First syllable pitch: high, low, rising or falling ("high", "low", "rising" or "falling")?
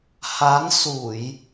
rising